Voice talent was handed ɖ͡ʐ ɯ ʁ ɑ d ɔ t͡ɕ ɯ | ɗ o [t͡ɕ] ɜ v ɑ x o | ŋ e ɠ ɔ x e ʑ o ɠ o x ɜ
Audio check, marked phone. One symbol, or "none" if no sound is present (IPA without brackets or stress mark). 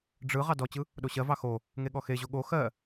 ɕ